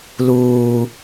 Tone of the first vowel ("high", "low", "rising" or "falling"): low